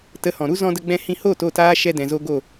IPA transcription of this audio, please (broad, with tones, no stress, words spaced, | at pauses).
tə˨˦hɔ̃˨ɾu˦ zɔ̃˧də˧ɡ͡bɛ̃˧ hĩ˧hoː˦˨t o˦˨taː˦ ʃɛ˧ dɛ̃˨zo˧ɡo˦˨